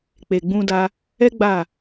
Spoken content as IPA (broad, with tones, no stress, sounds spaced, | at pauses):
k͡p e˨ ɡ͡b ũ˧ d a˧ | ɛ˦ ɡ͡b a˦˨